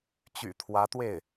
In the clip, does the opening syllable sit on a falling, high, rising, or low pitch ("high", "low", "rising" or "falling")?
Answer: low